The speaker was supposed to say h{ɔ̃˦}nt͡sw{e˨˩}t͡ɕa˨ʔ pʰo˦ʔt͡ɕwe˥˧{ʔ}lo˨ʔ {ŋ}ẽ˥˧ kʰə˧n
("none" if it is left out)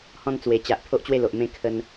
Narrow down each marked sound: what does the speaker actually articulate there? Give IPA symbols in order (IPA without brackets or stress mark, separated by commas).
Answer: ɔ̃˥˧, e˨˩, none, m